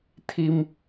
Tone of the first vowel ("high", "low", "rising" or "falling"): high